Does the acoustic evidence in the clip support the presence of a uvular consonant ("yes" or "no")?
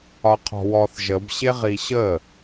yes